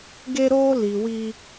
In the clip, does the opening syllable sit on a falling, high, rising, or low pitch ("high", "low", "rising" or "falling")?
high